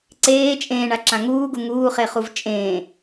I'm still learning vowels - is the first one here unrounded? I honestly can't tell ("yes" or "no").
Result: yes